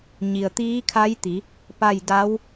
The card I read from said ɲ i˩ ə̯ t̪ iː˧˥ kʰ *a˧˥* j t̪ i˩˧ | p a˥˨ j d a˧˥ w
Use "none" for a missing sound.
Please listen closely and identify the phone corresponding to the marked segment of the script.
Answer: a˧˥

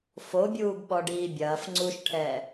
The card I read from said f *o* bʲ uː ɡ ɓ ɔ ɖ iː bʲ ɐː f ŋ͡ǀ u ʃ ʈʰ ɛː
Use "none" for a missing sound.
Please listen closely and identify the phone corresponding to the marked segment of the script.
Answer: o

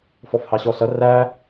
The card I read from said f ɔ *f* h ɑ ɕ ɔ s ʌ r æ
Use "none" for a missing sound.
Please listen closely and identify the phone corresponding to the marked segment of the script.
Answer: f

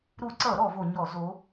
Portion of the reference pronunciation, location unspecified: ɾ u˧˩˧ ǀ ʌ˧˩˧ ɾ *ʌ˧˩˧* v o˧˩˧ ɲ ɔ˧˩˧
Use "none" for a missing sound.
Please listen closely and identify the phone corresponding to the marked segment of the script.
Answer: ɔ˧˩˧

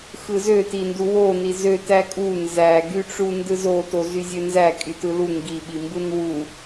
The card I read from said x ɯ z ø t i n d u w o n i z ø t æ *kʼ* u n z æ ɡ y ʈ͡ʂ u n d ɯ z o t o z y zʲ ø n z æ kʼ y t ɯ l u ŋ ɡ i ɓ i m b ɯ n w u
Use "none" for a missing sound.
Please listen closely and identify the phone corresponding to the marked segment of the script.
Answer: kʼ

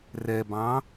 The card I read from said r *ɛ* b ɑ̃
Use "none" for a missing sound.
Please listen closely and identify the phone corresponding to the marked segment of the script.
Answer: ɛ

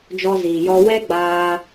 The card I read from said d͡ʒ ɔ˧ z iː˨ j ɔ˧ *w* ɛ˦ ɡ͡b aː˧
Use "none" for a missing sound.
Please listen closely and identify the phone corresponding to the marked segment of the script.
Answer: w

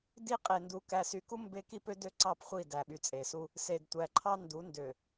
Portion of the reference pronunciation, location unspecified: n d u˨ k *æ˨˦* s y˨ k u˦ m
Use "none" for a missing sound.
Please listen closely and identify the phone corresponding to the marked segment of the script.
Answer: æ˨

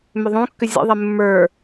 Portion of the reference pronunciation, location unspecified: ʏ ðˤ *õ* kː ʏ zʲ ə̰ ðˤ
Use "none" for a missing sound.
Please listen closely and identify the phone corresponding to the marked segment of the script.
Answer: õ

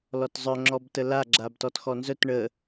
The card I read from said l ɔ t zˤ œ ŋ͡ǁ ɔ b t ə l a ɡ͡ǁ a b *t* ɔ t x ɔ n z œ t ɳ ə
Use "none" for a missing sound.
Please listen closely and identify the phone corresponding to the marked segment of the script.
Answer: t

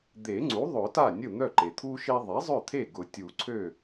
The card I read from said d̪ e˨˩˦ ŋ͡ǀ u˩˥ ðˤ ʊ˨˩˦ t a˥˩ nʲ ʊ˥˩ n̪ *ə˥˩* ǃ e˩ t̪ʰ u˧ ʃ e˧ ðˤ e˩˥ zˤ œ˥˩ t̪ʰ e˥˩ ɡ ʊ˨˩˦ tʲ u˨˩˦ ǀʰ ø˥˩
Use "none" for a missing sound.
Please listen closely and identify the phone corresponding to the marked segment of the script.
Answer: œ˥˩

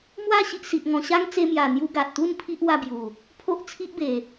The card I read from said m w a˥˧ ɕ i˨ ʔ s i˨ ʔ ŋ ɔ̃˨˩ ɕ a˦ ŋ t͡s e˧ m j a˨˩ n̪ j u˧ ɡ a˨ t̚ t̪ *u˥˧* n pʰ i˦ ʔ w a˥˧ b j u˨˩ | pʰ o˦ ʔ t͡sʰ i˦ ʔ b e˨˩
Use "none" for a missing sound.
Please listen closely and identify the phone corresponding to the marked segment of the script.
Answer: u˥˧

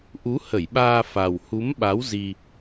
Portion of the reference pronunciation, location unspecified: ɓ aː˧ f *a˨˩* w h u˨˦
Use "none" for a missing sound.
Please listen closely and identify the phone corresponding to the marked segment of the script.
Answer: a˨˩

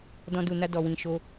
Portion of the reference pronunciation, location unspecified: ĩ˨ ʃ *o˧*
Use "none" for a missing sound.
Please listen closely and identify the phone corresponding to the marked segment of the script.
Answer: o˧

